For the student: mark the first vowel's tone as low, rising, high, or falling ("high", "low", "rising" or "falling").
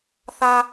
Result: high